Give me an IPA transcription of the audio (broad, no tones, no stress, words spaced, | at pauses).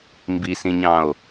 mbisĩɲɑ̃o̯